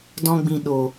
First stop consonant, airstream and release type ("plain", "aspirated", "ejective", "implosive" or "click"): plain